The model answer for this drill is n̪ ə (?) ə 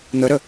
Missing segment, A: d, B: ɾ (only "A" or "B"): B